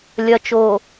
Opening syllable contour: low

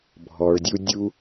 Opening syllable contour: low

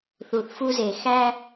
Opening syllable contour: low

